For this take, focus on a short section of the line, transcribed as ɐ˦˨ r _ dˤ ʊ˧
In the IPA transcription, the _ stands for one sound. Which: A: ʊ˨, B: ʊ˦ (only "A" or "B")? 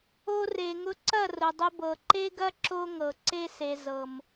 A